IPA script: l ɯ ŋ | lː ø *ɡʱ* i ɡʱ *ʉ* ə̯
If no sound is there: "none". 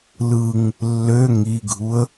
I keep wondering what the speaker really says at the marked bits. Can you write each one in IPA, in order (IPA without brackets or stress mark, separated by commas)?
ŋ, u